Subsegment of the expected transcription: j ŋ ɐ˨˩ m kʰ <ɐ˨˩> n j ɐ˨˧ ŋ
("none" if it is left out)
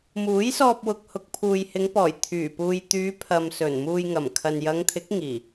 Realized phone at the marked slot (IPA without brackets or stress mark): ɐ˨